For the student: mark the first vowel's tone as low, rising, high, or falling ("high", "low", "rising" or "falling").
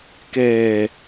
low